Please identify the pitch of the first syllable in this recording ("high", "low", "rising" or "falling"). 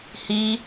high